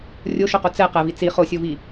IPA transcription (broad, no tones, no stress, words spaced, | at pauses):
rʲoʃoqo t͡sɛ qɛvi t͡si χosʲovi